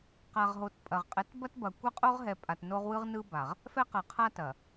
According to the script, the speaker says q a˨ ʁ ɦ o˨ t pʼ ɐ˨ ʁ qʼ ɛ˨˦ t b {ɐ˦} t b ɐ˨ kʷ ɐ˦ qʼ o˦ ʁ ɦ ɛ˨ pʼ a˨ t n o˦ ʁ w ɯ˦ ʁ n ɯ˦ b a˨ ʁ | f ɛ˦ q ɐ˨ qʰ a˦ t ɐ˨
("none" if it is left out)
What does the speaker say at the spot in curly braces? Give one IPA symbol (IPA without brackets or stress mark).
ɐ˦